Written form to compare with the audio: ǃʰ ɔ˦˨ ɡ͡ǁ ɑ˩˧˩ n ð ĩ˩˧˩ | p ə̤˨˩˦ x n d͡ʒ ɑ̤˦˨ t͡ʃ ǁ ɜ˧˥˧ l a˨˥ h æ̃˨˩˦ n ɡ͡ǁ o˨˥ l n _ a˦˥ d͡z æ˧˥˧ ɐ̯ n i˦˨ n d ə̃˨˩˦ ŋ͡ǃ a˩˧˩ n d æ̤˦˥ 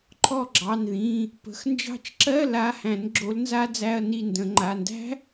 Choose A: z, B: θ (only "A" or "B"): A